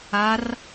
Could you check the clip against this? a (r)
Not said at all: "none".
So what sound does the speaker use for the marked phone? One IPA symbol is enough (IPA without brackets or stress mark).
r